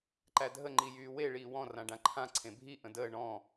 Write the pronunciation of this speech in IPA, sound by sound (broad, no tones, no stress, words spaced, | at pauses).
ǃædʱə ŋ͡ǃijyːwe ɭiːwɔ̃ rãɖãǃʰã ǀʰẽbʱi ʔə̃dəː ɳɔ̃